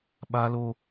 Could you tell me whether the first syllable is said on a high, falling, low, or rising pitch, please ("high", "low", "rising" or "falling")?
high